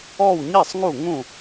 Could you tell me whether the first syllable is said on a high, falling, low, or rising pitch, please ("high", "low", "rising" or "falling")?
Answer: falling